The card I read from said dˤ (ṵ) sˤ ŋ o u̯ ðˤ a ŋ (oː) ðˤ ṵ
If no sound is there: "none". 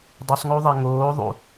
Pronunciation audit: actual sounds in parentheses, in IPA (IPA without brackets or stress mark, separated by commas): u, oː